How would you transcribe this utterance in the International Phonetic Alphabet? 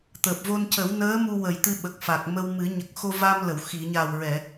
t̪ əː˨˩ p̚ v o˧ n c ə˨˩˦ w n əː˧˥ m u˧ w ə˨˩ j t̪ ɨ˧ ɓ ə˨˩ k̚ f a˨˩ k̚ m ə˧ w m ɨ˨˩˦ ɲ ə˨˩ k̚ x o˧ v a˧ m l ə˨˩˨ w x i˨˩˨ ɲ a˨˩ w ɹ ɛ˨˩˨

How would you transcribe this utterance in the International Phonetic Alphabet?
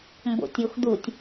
m b o̰ tʲ o x d̪ u tʲ

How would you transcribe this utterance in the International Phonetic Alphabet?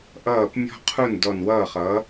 ʔ ʌː˥˩ p mʲ ɔ̤˥ qʰ u˥˩ n d ɔ˧˩ n w ʌː˥˩ χ ʌː˩˥

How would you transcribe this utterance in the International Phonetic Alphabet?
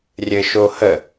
rʲ ɘ ʃ o h ə

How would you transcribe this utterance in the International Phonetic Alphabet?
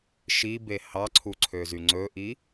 ʃ i b e h ɑ ǀʰ u ǀʰ ø z y ŋ͡ǀ ɵ ʔ i

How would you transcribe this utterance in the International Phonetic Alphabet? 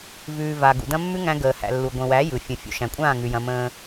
v ʉː˨ v a˨ ɡ ṵ˨ d ɐ̃˦ mː ʉ˦ ŋ æ̃˦ ɡ əː˨ h æ̰˨ lː u˨ ɡʷ ə̃˨ w æ˨˦ j ɯ˨ fʲ ə̃˨ fʲ ṵ˨ ʃ æ̃˨ kʷʼ ãː˦˨ ŋ ʉ˨ j ɐ̃˦ m ə̃ː˦

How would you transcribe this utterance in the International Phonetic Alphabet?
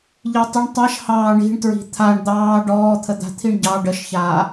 ʎ i tˤ ə ɳ tˤ a ʃ h ɑː ɳ i̤ ɳ t ɹ i̤ t̪ʰ a ɳ d̪ ɑː ɖ ɔː t̪ʰ ə d̪ a̤ t̪ʰ i ɳ ɟ ɑ ɖ ə ʃ ç aː

